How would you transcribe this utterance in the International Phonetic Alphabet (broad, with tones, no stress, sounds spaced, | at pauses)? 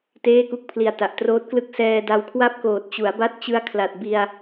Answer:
t eː˥˩ k u˥˩ k̚ pʰ l i˨˩ a̯ t a˨˩ ʔ t r oː˦˥ t̚ k l ɯ˥˩ k̚ s ɛː˧ d a˧ w kʰ w a˥˩ p̚ k oː˨˩ t̚ t͡ɕ u˩˦ a̯ b a˦˥ t̚ t͡ɕ ɯ˦˥ a̯ kʰ l a˨˩ t̚ b i˧ a̯